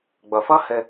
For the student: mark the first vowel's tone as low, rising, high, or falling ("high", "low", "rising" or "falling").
low